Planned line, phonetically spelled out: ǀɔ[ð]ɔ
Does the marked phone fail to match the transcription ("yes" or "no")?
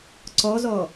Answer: yes